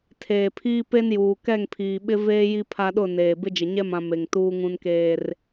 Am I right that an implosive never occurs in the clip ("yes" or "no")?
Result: no